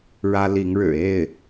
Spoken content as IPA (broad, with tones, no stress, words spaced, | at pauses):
ɻä˥li˧˥ŋɻɻ̩˨˩ e˥˩ɪ̯